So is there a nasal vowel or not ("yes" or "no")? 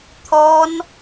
no